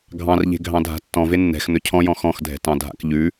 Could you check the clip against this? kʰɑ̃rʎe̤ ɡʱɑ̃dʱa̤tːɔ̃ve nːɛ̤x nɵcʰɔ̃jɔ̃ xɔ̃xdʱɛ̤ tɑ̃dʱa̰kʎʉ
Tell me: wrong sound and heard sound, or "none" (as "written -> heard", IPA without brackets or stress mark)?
kʰ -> ɡʱ